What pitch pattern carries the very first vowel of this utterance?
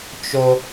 high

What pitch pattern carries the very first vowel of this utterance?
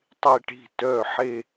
falling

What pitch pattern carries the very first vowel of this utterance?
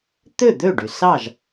falling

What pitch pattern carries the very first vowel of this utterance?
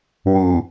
low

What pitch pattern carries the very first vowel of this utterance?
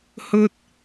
high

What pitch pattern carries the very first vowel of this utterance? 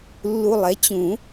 low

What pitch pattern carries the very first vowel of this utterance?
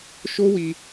high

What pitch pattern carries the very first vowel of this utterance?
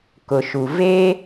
low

